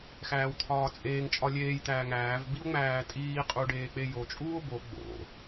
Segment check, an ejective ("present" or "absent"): present